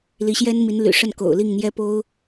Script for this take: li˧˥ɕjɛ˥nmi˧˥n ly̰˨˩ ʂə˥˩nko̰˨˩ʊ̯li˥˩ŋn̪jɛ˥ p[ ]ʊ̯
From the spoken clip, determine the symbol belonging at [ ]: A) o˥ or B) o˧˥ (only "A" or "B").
A